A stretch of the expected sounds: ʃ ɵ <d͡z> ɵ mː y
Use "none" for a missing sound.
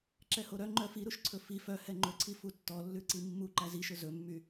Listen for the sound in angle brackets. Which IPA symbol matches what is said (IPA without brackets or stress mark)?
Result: z